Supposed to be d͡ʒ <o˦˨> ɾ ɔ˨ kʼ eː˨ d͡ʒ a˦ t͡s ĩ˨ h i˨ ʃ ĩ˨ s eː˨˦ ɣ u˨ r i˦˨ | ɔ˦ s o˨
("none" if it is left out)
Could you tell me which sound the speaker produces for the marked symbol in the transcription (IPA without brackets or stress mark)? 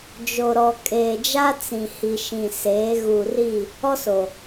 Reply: o˨